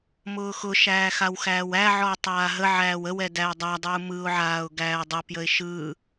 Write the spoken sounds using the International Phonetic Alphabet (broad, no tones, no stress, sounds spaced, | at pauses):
m ʊː x ʊ ʃ æː x a w x æː w æ ʕ ɔ ə̯ tˤ aː ɦ ə ʕ æː w ə w ɛ d æ ɪ̯ dˤ a dˤ uː m ɯ ʊ̯ ʕ aː ʊ̯ ɡ æː ə̯ dˤ ʊ p j ə ɪ̯ ʃ ɯ